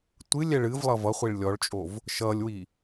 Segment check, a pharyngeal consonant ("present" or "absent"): absent